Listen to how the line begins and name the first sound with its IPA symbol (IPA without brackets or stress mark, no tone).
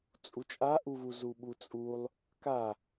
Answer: t͡sʼ